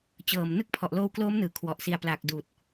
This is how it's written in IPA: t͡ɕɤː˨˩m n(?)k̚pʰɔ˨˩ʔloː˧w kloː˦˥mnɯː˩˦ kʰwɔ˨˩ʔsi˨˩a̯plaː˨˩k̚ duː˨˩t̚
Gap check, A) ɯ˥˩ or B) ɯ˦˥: B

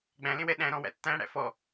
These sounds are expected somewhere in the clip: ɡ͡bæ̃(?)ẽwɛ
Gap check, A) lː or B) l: B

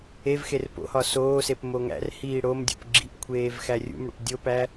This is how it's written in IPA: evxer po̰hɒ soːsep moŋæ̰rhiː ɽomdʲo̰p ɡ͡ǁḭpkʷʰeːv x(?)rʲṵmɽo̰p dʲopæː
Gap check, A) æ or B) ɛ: A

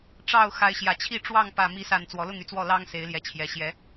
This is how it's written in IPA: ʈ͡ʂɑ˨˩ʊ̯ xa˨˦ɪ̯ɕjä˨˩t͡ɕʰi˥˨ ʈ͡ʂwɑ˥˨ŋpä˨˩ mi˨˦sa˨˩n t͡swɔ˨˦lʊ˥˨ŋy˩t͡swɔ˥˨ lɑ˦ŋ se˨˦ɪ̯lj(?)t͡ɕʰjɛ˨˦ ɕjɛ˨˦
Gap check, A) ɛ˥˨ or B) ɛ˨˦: B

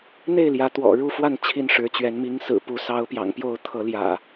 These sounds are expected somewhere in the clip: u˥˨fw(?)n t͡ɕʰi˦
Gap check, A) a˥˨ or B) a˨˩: A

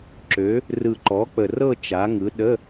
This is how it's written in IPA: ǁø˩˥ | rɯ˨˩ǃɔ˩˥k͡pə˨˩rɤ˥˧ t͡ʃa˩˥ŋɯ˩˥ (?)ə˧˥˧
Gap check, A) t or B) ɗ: B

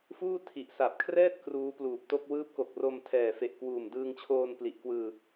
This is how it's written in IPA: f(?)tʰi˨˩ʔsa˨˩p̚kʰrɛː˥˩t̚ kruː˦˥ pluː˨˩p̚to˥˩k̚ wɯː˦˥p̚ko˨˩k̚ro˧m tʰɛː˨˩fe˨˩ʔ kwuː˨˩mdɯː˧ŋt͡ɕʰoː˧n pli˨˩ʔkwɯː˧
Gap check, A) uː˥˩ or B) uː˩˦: A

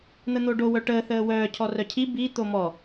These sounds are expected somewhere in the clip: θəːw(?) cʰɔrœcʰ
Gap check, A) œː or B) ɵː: A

